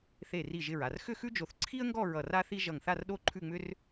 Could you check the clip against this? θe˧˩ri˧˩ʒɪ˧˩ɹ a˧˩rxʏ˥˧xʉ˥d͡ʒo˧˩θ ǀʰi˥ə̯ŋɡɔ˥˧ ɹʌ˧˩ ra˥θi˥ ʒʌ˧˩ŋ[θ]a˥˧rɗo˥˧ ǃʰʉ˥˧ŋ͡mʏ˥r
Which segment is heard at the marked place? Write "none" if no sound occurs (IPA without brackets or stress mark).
θ